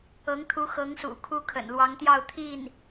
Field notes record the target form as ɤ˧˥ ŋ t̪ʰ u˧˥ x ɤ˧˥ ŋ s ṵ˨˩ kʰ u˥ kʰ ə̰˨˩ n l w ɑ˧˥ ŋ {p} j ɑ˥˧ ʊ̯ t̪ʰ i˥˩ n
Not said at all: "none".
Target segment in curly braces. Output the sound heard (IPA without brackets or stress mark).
t̪